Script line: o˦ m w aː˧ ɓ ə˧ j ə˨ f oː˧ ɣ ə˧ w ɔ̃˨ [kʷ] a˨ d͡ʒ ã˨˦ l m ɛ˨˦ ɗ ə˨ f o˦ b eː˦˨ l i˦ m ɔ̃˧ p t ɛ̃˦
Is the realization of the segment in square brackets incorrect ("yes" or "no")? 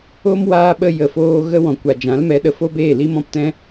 no